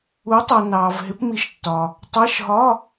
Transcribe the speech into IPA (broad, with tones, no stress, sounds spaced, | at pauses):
u˨˦ tˤ ʌ˨ n ɑː˨ v ɦ ɪ˨˦ p m i˨˦ ʃ tː ɒ˨ | tˤ ɜ˧˥˧ ʃ ɦ ɒ˧˥˧